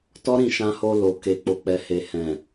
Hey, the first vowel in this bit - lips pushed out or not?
yes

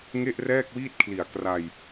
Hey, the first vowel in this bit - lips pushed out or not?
no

